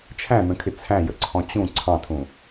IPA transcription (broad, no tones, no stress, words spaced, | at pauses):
t͡ʃʰæ̃nə̃kʰɪ t͡sʰæ̃jəǀʰɔ̃ t͡ɕũ ǀʰɑ̃tʰũ